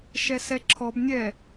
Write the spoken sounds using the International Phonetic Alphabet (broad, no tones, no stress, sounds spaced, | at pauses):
ʃ ɛ s ɛ ǁʰ ɔ b nʲ ɛ